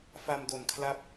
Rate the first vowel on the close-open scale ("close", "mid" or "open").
open